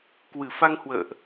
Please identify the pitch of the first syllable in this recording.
low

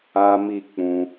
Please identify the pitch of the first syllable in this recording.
high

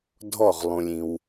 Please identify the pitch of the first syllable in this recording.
falling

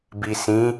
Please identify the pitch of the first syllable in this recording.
low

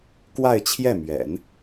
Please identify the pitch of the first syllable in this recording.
falling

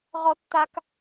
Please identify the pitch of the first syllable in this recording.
high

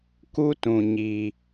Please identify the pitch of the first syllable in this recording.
high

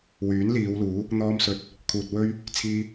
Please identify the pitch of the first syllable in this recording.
rising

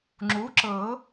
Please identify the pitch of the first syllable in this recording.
rising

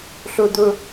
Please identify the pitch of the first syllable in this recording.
high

